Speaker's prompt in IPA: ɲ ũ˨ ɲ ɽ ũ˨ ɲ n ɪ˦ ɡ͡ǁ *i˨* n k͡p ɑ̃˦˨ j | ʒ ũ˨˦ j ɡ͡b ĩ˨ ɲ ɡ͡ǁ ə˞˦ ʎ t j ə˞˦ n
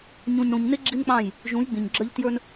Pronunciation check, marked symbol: incorrect: i˦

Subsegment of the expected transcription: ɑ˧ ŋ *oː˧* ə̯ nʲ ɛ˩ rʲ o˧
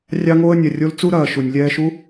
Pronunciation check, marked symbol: correct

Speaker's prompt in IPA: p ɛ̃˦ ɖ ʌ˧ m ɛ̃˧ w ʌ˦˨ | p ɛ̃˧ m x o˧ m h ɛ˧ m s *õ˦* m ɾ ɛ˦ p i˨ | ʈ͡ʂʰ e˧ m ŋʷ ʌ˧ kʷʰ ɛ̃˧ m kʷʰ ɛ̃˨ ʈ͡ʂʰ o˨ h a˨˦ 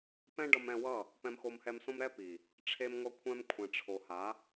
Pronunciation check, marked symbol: correct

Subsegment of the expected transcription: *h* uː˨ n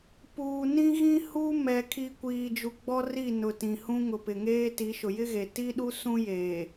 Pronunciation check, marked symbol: incorrect: p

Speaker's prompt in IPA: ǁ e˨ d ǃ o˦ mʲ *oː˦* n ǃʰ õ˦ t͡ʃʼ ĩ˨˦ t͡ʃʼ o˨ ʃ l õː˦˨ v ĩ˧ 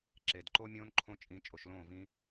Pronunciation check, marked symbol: incorrect: õː˦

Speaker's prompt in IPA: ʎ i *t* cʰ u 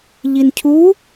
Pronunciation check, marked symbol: incorrect: n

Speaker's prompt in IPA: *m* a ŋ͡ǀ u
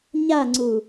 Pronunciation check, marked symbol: incorrect: ɲ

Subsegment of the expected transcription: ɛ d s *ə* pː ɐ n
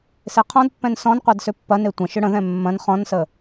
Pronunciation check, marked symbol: incorrect: ʏ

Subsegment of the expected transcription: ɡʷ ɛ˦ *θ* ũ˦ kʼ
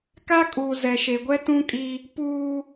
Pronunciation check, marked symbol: incorrect: t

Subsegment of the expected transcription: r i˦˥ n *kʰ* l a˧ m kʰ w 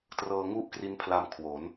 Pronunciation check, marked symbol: incorrect: pʰ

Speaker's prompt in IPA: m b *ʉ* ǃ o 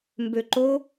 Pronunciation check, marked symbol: incorrect: ø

